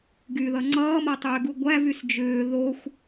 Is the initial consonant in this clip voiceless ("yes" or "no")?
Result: no